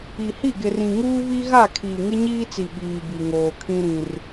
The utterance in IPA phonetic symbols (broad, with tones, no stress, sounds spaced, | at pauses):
i˨ h i˦˨ ɡ ɪ˨ r ĩ˨ ŋ uː˦ β i˦ ɣ a˦˨ kʰ iː˨ ŋ ɪ˦ ɲ iː˦ t͡s i˨ ɓ iː˨ b i˨ ŋ oː˨ kʰ ĩ˦ ɾ ĩ˦ r